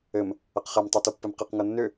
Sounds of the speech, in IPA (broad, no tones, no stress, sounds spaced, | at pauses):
ɘ m | ɐ q χ ɛ m tˤ ɤ t o pː ɘ m q ɛ q ŋ ɤ nː ʏ